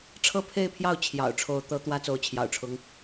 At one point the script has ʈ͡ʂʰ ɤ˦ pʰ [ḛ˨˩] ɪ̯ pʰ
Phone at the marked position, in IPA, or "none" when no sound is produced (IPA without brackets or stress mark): e˥˨